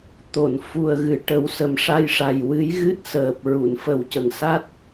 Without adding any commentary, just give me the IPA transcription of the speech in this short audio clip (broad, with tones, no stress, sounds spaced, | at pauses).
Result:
t̪ o˨˩˨ n f u˨˩ ə̯ ɣ ɨ˨˩˦ ʈ ə˨˩˦ w s ə˨˩ m ʂ a˧ j ʂ a˨˩ j w ɨ˧˥ j ɣ ɨ˦˥ t̚ s əː˨˩ p̚ ɹ u˨˩˨ n f ə˨˩ w c ə˨˩ ŋ s a˦˥ t̚